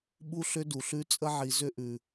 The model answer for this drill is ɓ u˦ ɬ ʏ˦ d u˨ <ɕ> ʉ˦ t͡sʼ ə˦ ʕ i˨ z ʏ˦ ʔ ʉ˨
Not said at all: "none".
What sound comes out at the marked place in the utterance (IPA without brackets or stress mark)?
ɬ